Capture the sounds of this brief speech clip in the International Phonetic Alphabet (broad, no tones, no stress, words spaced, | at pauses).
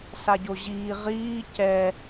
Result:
saɟoʑiː ʁiː cɛ